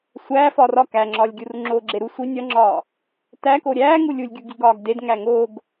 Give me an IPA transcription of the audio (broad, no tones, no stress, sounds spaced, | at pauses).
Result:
sʷ æː f ɒ r ɒ k æ ŋ͡ǁ ɒː lʲ ɡʲ u r ŋ͡ǁ oː ɡ͡ǁ e ɾ u sʷ i nʲ ɒ ŋ͡ǁ ɒː | t æ k o ɾʲ æː ŋ u lʲ u lʲ ɡʲ u ɡ i ɡ ɒː ɡ d e d ŋ æ ŋ o ɡ